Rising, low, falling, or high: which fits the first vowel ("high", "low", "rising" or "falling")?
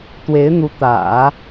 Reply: rising